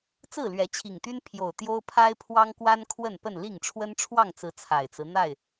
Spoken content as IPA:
t͡s ɹ̩˥˨ l ɥ ɛ˨˦ t͡ɕʰ i˨˩ ŋ t̪ y˦ n pʰ j o˨˩ ʊ̯ t̪ j o˦ ʊ̯ pʰ a˦ ɪ̯ pʰ w ɑ˦ ŋ k w a˦ n kʰ w ə˥˨ n p ə˥˨ n l i˥˨ ŋ ʈ͡ʂʰ w ə˦ n ʈ͡ʂʰ w ɑ˥˨ ŋ t͡s ɹ̩˨˦ t͡sʰ a˨˩ ɪ̯ t͡s ɹ̩˦ n̪ a˥˨ ɪ̯

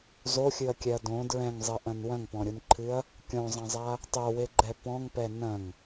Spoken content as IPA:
z o xʲ ɨ ɐ̯ kʲ ɛ ɐ̯ d õ d ɹ ɛ̃ ŋ zˤ ɘ ʔ ɐ̃ n w ɐ̃ ŋ p ɔ̃ ɾʲ u n ǃʰ ɨ ɐ̯ | kʲ õ zˤ ɐ̃ zˤ a | tˤ o w e ɡ͡ǃ ɛ p ɔ̃ ŋ p ɛ n ɐ̃ ŋ

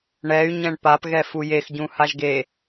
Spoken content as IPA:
ɳ ɛ y̯ ɲ ɛ̃ ɳ p a p ɣ ɛ f u j e x ɟ ũ h a ʒ ɡ e

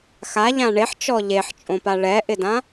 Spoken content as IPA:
x a ʎ ã ɳ e ħ t͡ʃ ɔ ʎ e ħ t͡ʃʼ õ p a ɭ ɛ ʔ ɪ d ã

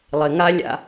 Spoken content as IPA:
lˠ ɪ˨ ŋ a˦ lʲ a̰˦

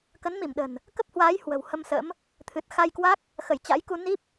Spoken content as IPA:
k ə˨˦ n m i˧˩ m ɗ ə̤˨˩ n | k ə˦˥ p̚ h w aː˨˦ j h w ə̤˨˩ w h ə˧ m s ə̰˧˥ m | t̪ʰ ɨ˨˩ t̚ x a˧ j k w a˦˥ k̚ | x ə˧˩ j t͡ɕ a̰˧˥ j k u˧ n i˦˥ p̚

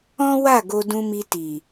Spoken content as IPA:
ɔ̃˦ w a˦˨ ɡ o˧ d ũ˧ m i˧ t i˨

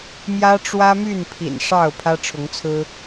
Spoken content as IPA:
m j ä˦ ʈ͡ʂ w ä˦ m y˥˨ n pʰ ḭ˨˩ n ʂ ɑ˥˨ ʊ̯ pʰ ä˦ ʈ͡ʂʰ ʊ˨˦ ŋ t͡sʰ ɹ̩˦

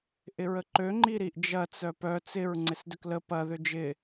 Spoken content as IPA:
ʔ ɪ ɹ ə ǃ ø ŋ͡ǃ i ɾ i ʔ d͡ʒ ɐ t͡s œ p œ t͡s ɪ ɹ ŋ͡ǀ ɪ s d ʏ k l ə p ɐ ð ʏ d͡ʒ ɪ

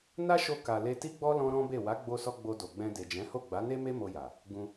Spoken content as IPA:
n a˦ ʃ o˧ k a˨ l e˧ t i˦ ɡ͡b ɔ˦ l ɔ̃˦ ɾ ɔ̃˦ b e˦˨ w a˨˦ ɡ͡b o˧ s ɔ˧ ɡ͡b o˧ d o˨ ɡ͡b ɛ̃˧ d e˨ d͡ʒ ɛ̃˨˦ h o˦˨ ɡ͡b a˨˦ n e˦ m e˦ m o˧ j a˨ | ɡ ũ˧

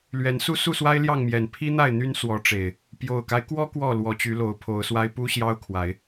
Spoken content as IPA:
l ɥ ɛ˨˦ n s u˦ s u˥˨ s w a˦ ɪ̯ l j ɑ˥˨ ŋ m j ɛ˨˩ n pʰ i˦ n̪ a˥˨ ɪ̯ n̪ y˦ n s w ɔ˨˦ ʈ͡ʂ e˨˩ ɪ̯ | p j o˨˩ ʊ̯ k a˦ ɪ̯ k w ɔ˦ k w ɔ˥˨ l w ɔ˨˦ t͡ɕ y˨˦ l o˨˦ ʊ̯ pʰ o˨˦ ʊ̯ s w a˦ ɪ̯ p u˦ ɕ j ɑ˦ ʊ̯ kʰ w a˨˦ ɪ̯

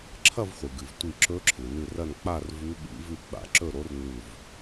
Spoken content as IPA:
ǁʰ ɐ˥˨ v χʷ ɨ˩ ɡ ɨ˩ v tʷ i˧˩ ǁ ɵ˧˥ ǁʰ ɨ˩ n ɨ˧˩ r ɐ˥˨ n k͡p a˥˨ r v ʉ˧˥ ɓ ḭ˧˥ v ʉ˥˨ ɡ͡b a̰˧˩ ǁ ɵ˥˨ ɾ o˧˥ r n ʉ˥˨ v

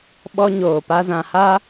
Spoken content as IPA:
ɓ ɔ˦ ɲ oː˨ p a˦ z ã˨ h a˦

